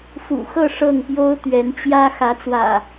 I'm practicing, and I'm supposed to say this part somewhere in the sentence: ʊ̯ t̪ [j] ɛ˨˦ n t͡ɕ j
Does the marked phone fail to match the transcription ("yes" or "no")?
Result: yes